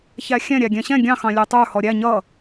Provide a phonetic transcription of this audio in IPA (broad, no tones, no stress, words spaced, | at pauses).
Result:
çæxʲɛ̃ ɾʲæɡʲɛ̃ɕɛ̃ ɡʲɑ̃ xɑ̃lʲə˞tˤə˞ hɔɾʲæ ɲʌ